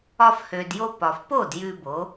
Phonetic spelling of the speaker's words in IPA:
ɒ˧ f h øː˩ d j o˧ p ɒ˩ f p o˥˩ d j ʉ˧ b o˩˥

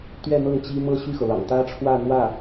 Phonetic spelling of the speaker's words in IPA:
t̪ ɥ ɛ˥˧ n̪ ɤ˥˩ ŋ t͡ɕ i˥ m ɤ˥˧ ɕ y˥˩ x ɤ˩ l ɑ̰˨˩ ŋ t̪ ä˥ ʈ͡ʂʰ w ä˥˧ n̪ w ä˥˩

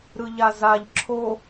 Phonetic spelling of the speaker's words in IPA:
ɾ ɯ ʎ a z a ʎ ǁʰ o

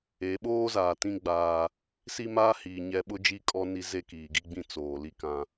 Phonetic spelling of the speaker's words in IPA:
e˨˦ ɓ oː˦ z aː˨ t ĩ˦ ɡ͡b aː˦ | s i˦ m aː˦ h iː˨ ɲ ɛ˦ ɓ ʊ˦ d͡ʒ i˦˨ kʼ ɔ˦ n i˦ z e˦ k iː˨ ɡ i˦ ɡ͡b ĩ˦ t͡s oː˨ l i˦ k ã˦

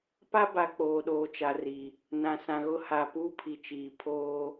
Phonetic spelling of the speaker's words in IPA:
p a˦ b a˨ k͡p oː˨ ɗ oː˨ t͡ʃ a˨ r i˨ | n ã˨ s ã˨ ɣ ʊ˦ h a˨ p uː˦ pʰ i˨ t͡ʃ iː˨ pʰ oː˦

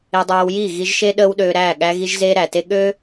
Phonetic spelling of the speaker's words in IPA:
e˧ dˤ æː˧ w j iː˦˨ ɣ i˧ ʒ ʃ e˦ ɗ əː˦ w ɗ øː˧ ɾ æː˦˨ ɠ æ˧ ɣ i˧ ʒ z eː˧ ɾ æ˨ t e˦ ɠ ø˦

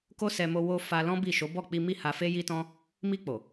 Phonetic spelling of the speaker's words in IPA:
k o˦ s ɛ˧ m o˧ w o˧ f a˧ l ɔ̃˦ b i˦˨ ʃ o˨˦ b ɔ˦˨ k͡p i˧ m i˦ h a˧ f e˦ j i˦ t ɔ̃˦ | m i˧ k͡p o˨

